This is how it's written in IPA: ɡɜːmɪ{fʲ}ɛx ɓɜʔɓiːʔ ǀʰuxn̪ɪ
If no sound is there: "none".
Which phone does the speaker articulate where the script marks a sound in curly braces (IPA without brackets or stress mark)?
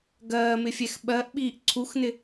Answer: fʲ